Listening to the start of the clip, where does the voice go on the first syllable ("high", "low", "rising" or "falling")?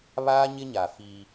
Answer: high